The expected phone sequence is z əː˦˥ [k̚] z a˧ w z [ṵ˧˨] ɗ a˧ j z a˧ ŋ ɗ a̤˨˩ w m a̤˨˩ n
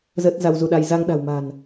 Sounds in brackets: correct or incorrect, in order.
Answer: incorrect: t̚, incorrect: u˧

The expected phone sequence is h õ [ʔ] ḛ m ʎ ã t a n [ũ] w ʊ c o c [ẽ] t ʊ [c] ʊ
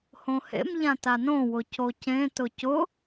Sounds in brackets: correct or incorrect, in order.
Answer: incorrect: h, incorrect: õ, correct, correct

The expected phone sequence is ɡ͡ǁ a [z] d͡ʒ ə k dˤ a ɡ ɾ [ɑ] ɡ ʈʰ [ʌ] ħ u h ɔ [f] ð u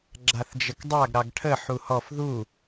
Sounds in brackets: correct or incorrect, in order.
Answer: incorrect: θ, correct, incorrect: ə, correct

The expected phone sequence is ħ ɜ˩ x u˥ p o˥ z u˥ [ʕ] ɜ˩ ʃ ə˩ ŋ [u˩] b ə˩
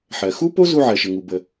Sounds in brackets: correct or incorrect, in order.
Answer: correct, correct

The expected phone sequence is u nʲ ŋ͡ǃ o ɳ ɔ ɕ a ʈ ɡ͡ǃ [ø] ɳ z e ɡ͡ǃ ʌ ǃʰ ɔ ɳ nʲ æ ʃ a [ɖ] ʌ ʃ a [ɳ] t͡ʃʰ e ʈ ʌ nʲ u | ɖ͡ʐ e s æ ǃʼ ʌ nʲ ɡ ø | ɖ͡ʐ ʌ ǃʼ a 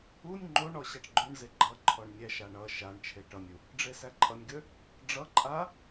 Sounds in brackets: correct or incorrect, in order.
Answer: correct, incorrect: ɳ, correct

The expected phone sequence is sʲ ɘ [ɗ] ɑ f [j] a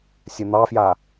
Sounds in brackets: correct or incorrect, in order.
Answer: incorrect: n̪, correct

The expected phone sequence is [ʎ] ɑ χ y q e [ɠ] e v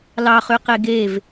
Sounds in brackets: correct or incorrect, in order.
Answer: incorrect: l, incorrect: ɡ

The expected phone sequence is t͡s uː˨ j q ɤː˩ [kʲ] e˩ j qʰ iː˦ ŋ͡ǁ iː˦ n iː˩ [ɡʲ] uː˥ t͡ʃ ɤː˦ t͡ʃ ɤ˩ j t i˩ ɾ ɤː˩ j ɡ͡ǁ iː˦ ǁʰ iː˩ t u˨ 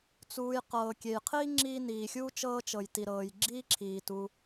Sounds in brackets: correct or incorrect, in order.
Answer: correct, incorrect: xʲ

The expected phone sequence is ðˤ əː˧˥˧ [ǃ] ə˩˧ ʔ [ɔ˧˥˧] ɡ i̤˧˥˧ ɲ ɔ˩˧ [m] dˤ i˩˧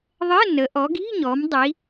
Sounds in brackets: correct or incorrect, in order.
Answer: incorrect: n, incorrect: ɔ˩˧, correct

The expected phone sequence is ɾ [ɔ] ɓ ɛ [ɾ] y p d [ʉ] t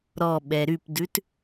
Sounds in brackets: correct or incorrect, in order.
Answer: correct, correct, correct

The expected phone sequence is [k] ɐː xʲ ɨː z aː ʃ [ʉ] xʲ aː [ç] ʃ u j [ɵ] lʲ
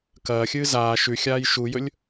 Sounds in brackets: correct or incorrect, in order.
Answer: correct, correct, incorrect: j, correct

